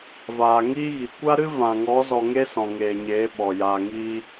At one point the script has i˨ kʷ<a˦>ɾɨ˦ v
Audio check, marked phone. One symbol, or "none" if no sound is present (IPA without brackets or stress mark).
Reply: a˦